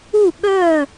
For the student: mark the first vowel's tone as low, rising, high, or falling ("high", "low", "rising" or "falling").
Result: falling